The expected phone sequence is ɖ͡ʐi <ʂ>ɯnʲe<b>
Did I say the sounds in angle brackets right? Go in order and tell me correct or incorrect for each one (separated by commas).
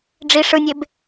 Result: correct, correct